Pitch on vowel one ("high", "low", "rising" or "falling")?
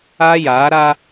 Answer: high